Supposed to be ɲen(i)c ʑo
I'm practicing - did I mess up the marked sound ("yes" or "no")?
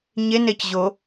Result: yes